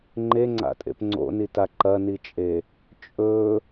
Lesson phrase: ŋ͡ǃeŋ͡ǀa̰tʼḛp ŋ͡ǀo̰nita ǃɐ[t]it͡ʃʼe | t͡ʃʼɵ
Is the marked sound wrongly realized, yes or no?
yes